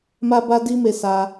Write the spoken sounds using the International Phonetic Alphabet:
m a˦ b a˦ d i˦ m e˧ s a˧

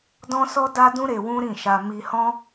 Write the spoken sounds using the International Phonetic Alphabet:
d ɔ̃˦ s ɔ˦ d a˦ d ũ˦ ɾ e˧ w ũ˦ ɾ ĩ˦˨ ʃ a˧ m i˧ h ɔ̃˦

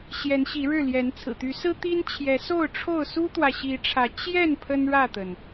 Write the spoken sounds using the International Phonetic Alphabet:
ɕ j ɛ˨˦ n ɕ i˨˦ ɻ ɻ̩˥˨ l j ɛ˨˦ n t͡sʰ ɹ̩˨˩ t̪ y˨˦ s ɹ̩˦ t̪ i˦ n t͡ɕʰ j ɛ˨˦ s o˥˨ ʊ̯ ʈ͡ʂʰ o˥˨ ʊ̯ s u˦ t̪ w ä˨ ɕ i˨˦ ʈ͡ʂʰ ä˨˦ t͡ɕ j ɛ˥˨ n pʰ ə˦ n ɻ ä˥˨ t̪ ə˩ n

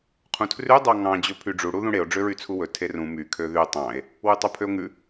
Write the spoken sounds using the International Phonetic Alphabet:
qʰ ũ tʰ r ʉ dˤ ɑ ŋ ɑ̃ d͡ʑ ɵ pʰ y ɖ͡ʐ u ɽ u ð ũ ɽ e o̯ ɖ͡ʐ ø ɹ y t͡sʰ u w ɵ tʰ e r ũ m y kʰ ø ð y tˤ ɑ̃ e̯ | w ʉ tˤ ʉ pʰ ø o̯ ŋ ʉ

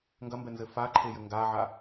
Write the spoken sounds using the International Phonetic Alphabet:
ŋ ɡ ɐ m b ɛ n z ɘ f a ǃʰ e j ɘ ŋ ɡ a ʕ a

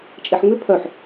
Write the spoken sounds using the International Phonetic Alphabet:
t͡ʃʼ e ħ ŋ͡m ʏ pʰ œ ħ

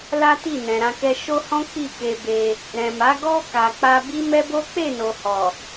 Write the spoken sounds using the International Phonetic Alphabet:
l a˦ t i˦˨ n ɛ̃˨ ɾ ã˧ k ɛ˧ ʃ o˦ h ɔ̃˦ k͡p i˦˨ k e˧ b e˧ | ɾ ɛ̃˨ m a˨˦ ɡ ɔ˦ k a˧ k͡p a˦ b i˦ m ɛ˦ b o˦ k͡p e˦˨ n o˨ h ɔ˨

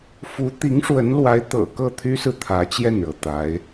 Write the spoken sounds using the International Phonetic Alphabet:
f u˧˥ t̪ i˧˥ ŋ ʂ w ə˧˥ n l w a˧˥ ɪ̯ t̪ ɤ̰˨˩ k ɤ˥˩ t̪ʰ y˥ s ɹ̩˨ t̪ʰ ä˧˥ t͡ɕ j ɛ˥˩ n ɻ ɤ˩ t̪ a˧˥ ɪ̯

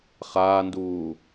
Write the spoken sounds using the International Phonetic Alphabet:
χ aː n d uː

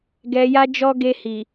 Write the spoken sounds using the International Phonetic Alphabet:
ɡ ɛ˨ j a˧ d͡ʒ ɔ˧ ɡ e˧ h i˨

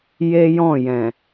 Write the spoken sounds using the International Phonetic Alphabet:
j e˦ j ɔ̃˦˨ j ɛ̃˨

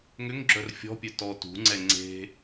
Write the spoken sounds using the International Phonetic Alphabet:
ŋ ʏ ŋ ɡ͡ǁ œ r fʲ ɔ̤ pʲ œ t ɔ t ṳ ŋ͡ǀ ɛ ŋ͡ǀ e̤

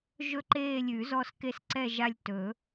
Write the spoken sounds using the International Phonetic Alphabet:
ʒ ɵ˦˨ ǃ eː˦˨ lʲ ʉ˨˩˦ z ɔ˦˨ s k e˦˨ s ǀ ɛ˦˨ ʒ a˦˨ lʲ t ɵ˨˩˦

